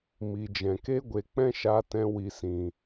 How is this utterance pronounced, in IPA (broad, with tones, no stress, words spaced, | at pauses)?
mi˨d͡ʒɛ̃˨ke˦ ɡʷe˨ k͡pɛ̃˦ʃa˧tɛ̃˧ wi˨sĩ˨